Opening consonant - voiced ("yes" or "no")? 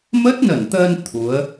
yes